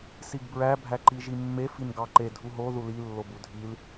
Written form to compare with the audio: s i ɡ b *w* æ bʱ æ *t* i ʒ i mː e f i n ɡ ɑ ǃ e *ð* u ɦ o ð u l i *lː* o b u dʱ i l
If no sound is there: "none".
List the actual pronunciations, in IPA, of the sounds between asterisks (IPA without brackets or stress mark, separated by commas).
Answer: ɹ, ǃ, dʱ, lː